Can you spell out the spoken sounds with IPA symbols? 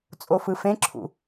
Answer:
t͡sʼ o f ɯ f ẽ ǁʰ ṵ

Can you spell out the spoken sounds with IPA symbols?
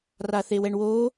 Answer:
r a θ e w ɛ ɳ w oː

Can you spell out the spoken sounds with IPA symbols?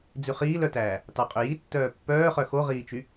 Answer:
d͡z ʉ χ iː l œ t æː | t ɑ qʼ ø j i tː œː pː œː χ œ x o ʁ iː t͡ʃ y

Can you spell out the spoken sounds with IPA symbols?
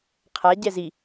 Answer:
qʰ a ɟ ɛ z i

